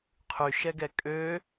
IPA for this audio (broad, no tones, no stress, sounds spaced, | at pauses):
qʰ y ʃ ɛ ɡ ɛ kʼ ø